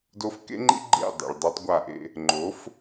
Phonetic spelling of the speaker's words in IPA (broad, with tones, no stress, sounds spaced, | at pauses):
d o˧ f k ḛ˦ ŋ͡ǃ ḭ˦ ɡ͡ǃ ḛ˦˨ dˤ ḛ˨ ɭ dˤ i˧ tˤ ɡʷ a˦˨ ʔ ḛ˦ | ŋ͡ǃ o˨˦ f